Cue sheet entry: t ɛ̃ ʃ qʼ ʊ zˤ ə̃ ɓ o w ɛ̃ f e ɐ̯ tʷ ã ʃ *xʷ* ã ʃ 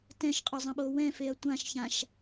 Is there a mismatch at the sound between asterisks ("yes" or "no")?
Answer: yes